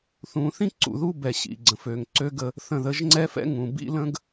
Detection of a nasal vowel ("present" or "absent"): present